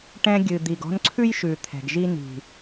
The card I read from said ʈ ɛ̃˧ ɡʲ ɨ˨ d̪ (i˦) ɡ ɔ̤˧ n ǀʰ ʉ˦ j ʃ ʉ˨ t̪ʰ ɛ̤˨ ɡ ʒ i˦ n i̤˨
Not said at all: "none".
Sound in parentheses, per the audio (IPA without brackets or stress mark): i˨